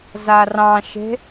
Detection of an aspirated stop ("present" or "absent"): absent